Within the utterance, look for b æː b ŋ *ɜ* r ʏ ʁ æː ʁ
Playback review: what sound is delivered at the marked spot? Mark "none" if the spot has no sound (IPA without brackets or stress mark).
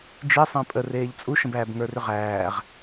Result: ə˞